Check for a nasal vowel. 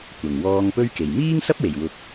absent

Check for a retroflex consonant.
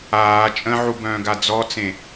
absent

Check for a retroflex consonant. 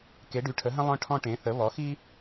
present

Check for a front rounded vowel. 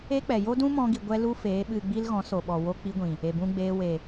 absent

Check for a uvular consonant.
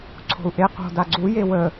present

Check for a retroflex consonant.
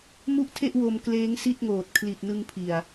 absent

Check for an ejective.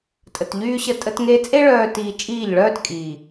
present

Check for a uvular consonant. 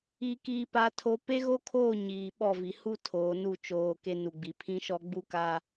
absent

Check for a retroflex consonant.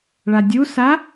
present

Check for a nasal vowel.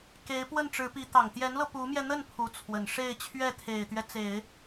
absent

